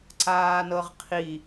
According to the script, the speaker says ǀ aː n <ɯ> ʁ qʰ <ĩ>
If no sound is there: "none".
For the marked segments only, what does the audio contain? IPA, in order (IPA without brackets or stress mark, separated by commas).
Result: ɤ, i